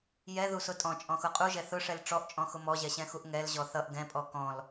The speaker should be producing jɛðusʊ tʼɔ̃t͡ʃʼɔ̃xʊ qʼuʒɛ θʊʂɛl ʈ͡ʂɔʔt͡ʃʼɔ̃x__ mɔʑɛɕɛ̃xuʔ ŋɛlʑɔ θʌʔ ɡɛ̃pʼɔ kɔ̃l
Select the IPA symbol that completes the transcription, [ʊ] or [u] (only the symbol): ʊ